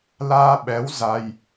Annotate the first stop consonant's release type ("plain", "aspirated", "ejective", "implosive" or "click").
implosive